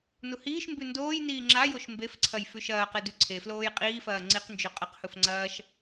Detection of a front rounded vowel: absent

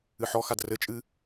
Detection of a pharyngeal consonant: present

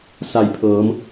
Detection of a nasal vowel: absent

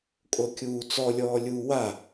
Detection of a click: absent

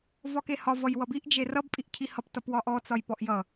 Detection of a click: absent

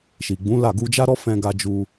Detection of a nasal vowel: present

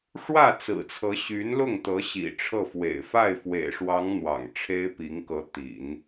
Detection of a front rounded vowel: present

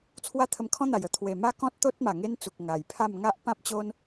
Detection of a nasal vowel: present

